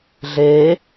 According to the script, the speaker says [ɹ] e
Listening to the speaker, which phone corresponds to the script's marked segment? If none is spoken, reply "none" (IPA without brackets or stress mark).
ɮ